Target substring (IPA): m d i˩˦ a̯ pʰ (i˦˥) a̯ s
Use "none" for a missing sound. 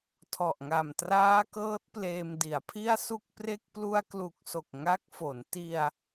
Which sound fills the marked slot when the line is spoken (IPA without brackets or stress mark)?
i˥˩